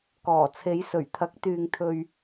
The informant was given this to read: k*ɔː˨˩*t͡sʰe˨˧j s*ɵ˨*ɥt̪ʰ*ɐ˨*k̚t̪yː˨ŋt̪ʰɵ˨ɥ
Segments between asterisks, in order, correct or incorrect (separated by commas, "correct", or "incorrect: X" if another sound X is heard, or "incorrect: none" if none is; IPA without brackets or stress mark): correct, incorrect: ɵ˨˩, incorrect: ɐ˨˥